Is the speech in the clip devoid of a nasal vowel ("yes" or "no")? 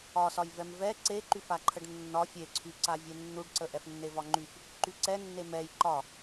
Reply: yes